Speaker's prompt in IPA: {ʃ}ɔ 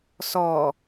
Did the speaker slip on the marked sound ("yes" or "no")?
yes